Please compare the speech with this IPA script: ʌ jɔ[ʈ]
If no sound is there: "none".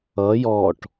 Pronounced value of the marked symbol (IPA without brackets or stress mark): ʈ